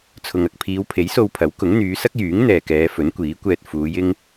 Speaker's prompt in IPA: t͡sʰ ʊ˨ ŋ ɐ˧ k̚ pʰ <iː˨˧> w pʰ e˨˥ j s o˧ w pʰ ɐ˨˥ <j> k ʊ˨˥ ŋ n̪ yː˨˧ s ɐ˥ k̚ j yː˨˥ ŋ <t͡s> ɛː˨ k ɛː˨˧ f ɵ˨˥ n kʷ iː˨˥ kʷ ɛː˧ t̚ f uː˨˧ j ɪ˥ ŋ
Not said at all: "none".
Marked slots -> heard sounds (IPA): iː˨˧, w, n̪

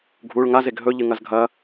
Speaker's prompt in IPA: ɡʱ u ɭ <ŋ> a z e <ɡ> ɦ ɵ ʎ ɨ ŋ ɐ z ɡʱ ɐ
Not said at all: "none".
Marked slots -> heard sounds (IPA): ŋ, ɡ

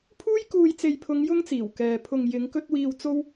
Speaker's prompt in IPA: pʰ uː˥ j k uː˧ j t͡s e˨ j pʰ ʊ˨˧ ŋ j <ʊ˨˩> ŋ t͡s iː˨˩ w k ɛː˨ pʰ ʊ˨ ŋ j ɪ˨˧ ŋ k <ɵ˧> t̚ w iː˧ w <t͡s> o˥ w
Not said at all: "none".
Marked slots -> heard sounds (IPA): ʊ˥, ɵ˧, t͡s

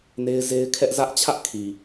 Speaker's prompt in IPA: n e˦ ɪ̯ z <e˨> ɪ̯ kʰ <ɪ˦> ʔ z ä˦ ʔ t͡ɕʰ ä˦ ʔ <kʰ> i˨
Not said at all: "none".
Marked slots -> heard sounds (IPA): e˦, ɛ˦, kʰ

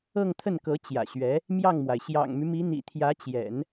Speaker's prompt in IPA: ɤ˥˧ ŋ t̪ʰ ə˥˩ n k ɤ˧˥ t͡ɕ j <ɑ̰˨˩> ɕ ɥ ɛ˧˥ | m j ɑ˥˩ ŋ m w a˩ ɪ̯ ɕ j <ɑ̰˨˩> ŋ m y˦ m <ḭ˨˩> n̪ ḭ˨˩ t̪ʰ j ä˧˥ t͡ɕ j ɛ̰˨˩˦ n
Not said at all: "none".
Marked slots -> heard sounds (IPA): ä̰˨˩, ɑ̰˨˩, i˧˥

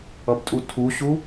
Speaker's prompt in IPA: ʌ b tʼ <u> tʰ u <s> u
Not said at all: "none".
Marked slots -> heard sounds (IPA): u, ɕ

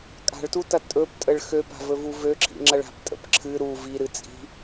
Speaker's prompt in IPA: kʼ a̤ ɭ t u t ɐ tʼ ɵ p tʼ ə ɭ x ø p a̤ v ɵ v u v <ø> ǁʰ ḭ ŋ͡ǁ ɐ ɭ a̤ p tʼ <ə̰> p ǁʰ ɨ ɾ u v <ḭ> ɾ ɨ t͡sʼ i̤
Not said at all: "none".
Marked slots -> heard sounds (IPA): ø, ə̰, i

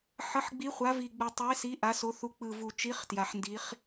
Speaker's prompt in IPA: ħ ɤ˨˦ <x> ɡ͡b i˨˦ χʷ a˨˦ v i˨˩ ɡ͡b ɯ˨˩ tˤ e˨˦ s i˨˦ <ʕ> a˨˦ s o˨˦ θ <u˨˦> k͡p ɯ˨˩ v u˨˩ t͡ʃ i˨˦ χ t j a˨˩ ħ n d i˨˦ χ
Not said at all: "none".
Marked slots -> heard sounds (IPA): ħ, ʔ, u˨˦

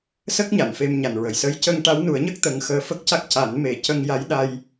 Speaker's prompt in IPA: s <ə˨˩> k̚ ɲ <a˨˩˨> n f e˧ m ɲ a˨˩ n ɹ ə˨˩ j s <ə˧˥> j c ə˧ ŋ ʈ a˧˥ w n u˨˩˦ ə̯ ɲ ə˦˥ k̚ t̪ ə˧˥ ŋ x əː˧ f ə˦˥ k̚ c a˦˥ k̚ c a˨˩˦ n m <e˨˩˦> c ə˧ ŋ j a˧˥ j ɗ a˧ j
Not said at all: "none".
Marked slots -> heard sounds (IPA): ə˦˥, a˨˩˨, ə˧˥, e˨˩˦

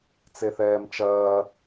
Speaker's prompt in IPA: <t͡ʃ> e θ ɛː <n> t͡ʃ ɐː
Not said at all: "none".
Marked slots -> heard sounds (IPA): t͡s, m

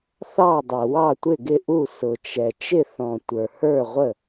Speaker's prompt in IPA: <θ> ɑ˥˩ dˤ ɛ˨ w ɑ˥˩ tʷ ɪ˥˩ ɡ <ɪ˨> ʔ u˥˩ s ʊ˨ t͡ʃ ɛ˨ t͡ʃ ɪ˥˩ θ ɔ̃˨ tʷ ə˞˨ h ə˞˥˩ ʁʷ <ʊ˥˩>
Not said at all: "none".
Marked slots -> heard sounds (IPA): θ, ɪ˥˩, ə˥˩

